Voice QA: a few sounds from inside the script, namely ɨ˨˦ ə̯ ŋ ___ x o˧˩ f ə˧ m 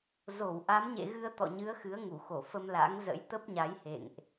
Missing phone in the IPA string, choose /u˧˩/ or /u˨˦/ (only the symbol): u˧˩